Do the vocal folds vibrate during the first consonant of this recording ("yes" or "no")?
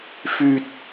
no